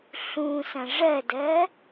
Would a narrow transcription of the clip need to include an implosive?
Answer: no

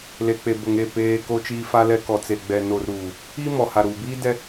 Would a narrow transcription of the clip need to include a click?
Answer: no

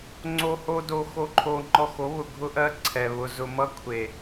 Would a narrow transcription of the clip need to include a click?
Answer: yes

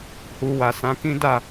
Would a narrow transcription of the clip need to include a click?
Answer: no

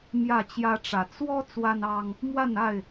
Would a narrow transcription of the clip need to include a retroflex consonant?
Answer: yes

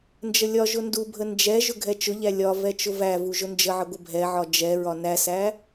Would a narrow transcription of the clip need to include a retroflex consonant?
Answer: no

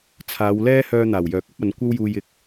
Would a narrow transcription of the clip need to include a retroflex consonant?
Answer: no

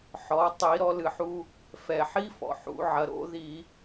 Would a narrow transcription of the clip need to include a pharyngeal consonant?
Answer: yes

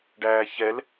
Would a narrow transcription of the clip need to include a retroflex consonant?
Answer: yes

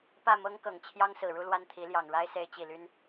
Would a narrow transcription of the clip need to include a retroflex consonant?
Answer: yes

